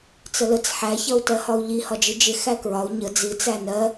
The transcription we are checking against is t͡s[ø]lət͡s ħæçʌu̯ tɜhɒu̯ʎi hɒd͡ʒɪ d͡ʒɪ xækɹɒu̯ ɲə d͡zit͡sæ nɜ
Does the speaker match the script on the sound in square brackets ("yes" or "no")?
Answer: no